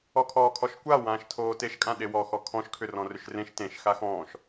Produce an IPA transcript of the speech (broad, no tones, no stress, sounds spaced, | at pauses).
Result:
ɔ kʰ ɔː kʰ ɔ ʃ kʷ a w ãː ʃ tʰ oː t e ʃ kʼ ã ɗ e w ɔ x ɔ kʰ ɔ̃ ʃ kʰ ʏ r ɔ̃ r ʏ ʃ r ẽ ʃ t ẽ ʃ x a x ɔ̃ː ʃ